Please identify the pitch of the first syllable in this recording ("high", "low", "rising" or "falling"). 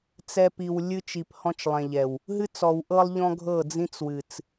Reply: low